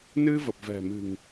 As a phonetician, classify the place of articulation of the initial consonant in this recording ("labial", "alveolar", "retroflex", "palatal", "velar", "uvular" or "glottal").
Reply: alveolar